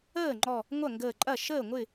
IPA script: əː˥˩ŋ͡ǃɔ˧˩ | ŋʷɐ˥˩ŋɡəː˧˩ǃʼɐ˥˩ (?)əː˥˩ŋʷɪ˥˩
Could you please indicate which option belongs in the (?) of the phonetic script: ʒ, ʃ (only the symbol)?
ʃ